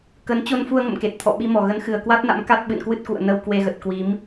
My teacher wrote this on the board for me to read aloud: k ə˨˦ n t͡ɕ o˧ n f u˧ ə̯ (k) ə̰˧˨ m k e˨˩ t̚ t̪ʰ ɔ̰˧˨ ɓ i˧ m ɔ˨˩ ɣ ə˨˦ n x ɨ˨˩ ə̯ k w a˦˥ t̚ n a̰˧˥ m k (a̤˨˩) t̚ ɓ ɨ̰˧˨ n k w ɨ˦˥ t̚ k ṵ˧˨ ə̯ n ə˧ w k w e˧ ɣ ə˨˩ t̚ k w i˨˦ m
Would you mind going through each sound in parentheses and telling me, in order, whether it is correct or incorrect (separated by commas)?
incorrect, incorrect